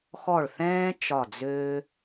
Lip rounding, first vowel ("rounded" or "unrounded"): rounded